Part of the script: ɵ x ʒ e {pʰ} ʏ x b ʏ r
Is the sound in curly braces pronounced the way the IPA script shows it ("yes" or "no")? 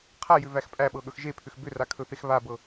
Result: yes